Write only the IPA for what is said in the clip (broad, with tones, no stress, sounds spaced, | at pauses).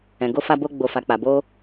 ɛ̃˨ ɡ o˧ f a˧ b o˧ ɡ͡b o˨ f a˨ k͡p a˨ b o˧